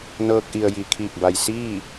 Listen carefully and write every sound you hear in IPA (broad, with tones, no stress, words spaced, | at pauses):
nɤː˧k̚ʔi˩ə̯ ji˩ kʰiː˧˩k̚ba˩j siː˥˨